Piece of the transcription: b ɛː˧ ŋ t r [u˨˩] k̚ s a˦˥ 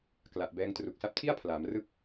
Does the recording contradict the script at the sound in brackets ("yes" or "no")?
no